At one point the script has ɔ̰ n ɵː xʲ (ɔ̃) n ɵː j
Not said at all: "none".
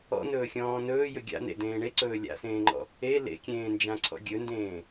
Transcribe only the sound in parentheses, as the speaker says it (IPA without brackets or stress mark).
ɔ̃ː